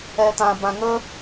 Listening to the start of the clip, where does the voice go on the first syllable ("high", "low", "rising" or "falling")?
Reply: low